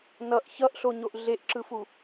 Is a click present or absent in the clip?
present